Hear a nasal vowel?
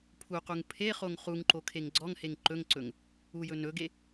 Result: no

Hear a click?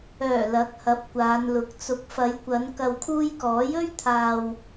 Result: no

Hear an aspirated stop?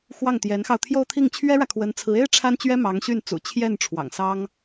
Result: yes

